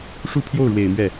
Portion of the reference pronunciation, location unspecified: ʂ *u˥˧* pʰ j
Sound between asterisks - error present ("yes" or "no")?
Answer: no